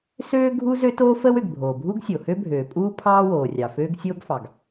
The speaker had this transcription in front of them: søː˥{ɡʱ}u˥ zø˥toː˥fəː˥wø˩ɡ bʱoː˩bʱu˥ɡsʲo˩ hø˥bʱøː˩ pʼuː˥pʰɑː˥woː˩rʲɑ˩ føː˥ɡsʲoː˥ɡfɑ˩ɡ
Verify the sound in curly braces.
correct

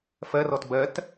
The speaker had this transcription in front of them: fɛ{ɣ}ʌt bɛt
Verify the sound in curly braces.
incorrect: r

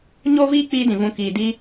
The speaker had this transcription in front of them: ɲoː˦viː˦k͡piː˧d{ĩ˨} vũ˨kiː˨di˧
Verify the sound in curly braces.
correct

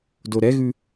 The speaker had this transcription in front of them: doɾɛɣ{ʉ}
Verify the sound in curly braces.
correct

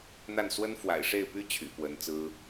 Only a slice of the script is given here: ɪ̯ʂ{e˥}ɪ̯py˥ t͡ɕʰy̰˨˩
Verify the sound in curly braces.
incorrect: e˥˩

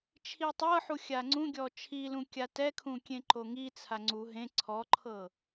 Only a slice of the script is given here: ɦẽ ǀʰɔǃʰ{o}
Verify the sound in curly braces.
incorrect: ɤ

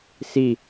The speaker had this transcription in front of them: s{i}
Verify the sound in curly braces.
correct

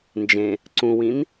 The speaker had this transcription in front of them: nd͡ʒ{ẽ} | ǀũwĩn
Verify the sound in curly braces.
correct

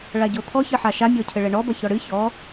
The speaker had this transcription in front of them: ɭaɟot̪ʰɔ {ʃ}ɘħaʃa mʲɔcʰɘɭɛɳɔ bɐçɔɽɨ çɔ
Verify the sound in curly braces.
incorrect: ç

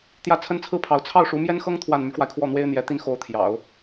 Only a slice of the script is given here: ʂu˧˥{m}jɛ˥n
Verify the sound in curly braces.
correct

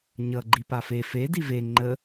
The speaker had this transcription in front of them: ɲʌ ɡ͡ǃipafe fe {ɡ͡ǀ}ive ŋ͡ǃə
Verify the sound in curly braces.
incorrect: d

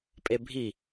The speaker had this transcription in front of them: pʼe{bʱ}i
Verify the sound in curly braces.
correct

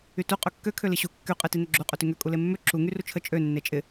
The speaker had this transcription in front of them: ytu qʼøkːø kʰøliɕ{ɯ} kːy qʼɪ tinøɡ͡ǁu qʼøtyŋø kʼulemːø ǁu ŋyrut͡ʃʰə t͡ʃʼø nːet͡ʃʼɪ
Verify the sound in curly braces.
incorrect: u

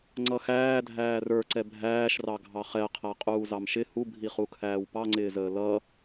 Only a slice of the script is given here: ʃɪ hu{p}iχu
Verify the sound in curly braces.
incorrect: bʱ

